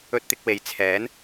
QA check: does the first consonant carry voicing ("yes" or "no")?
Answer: no